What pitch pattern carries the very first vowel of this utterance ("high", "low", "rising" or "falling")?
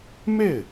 falling